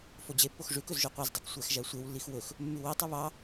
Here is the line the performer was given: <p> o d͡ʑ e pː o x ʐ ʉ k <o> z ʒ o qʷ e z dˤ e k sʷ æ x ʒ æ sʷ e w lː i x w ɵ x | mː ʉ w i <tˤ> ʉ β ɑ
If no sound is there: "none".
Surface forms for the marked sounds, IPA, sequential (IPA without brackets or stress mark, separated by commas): f, ɵ, tˤ